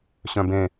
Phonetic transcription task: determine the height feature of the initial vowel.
mid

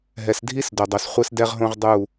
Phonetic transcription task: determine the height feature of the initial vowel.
mid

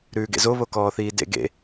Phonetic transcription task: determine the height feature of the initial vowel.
high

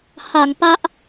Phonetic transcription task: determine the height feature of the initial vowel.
low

